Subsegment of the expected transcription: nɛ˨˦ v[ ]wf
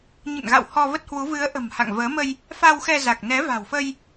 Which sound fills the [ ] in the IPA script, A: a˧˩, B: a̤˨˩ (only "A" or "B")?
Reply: B